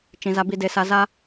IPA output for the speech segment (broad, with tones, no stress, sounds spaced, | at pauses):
t͡ʃ ĩ˨ z a˧ b i˧ d e˧ s a˧ z a˦